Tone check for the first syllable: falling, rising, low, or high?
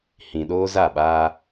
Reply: low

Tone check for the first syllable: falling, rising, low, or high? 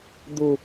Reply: low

